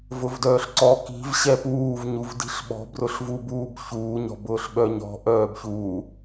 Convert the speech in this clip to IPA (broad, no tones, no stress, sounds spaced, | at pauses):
v ʊ v d œː ɬ ǀ ɔ k i̤ v ɕ ɛ p uː v ɲ u v d i̤ ɬ ɓ ɔ̤ b r ʊ ɬ v u b uː b ç uː ɲ ɔ̤ b ʊː ɬ ɓ œ ɲ ɔ̤ ʔ œː b ç u